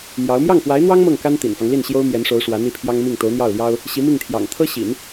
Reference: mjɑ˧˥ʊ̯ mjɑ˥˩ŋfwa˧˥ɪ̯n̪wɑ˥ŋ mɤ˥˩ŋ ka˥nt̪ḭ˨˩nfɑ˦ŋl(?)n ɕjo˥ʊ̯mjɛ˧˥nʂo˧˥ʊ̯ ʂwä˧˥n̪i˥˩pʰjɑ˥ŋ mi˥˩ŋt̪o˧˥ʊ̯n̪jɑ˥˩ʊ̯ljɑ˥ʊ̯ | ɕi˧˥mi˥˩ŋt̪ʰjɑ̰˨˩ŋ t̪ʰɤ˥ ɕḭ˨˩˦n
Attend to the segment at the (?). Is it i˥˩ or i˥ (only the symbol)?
i˥˩